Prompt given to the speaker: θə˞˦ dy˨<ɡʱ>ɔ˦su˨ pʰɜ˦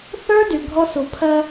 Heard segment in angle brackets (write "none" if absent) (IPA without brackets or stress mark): ɡʱ